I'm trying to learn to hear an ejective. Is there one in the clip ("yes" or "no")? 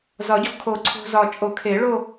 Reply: yes